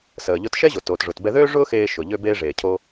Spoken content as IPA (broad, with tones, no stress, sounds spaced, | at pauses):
s əː˩ ʎ ʊ˧ t ʃ ɛ˥ ʑ o˩ t oː˩ t ʐ ʊ˩ t b ɛ˧ ð øː˥ ʐ ʊː˥ x eː˧ ʃ ʊ˩ ʎ ø˧ b eː˧ ʐ eː˩ cʰ o˧